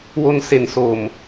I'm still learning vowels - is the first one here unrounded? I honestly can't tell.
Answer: no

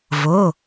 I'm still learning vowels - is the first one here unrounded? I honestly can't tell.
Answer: no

